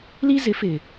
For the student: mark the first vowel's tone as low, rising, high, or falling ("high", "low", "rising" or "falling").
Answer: high